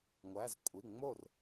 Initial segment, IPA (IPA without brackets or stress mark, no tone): ŋʷ